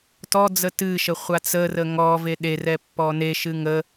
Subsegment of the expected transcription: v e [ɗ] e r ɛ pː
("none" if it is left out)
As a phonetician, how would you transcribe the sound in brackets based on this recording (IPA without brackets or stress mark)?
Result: ɗ